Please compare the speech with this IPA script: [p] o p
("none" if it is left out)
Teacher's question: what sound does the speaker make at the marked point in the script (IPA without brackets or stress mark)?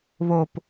β